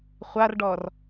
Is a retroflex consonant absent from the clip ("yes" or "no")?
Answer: no